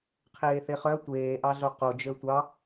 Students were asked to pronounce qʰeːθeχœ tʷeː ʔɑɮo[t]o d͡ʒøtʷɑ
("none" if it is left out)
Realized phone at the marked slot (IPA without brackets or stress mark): q